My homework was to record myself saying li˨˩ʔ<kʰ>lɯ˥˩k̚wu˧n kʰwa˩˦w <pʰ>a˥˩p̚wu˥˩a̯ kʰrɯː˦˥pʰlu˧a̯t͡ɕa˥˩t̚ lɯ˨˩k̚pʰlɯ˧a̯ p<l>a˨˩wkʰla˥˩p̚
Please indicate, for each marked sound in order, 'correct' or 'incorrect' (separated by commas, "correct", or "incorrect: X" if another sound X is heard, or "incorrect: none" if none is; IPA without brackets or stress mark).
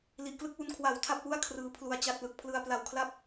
incorrect: k, incorrect: tʰ, correct